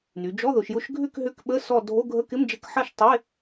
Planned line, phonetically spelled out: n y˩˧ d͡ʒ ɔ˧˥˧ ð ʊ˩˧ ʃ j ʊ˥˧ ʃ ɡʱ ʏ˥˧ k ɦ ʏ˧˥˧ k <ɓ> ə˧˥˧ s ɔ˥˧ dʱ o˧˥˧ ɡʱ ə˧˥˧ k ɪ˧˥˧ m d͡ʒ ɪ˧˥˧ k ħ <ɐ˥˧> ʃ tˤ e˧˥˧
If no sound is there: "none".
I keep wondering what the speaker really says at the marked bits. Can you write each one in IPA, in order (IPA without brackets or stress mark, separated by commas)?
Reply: ɓ, ɐ˥˧